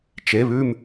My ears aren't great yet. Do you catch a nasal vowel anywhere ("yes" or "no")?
no